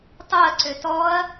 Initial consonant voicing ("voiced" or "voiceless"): voiceless